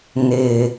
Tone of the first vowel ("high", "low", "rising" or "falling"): low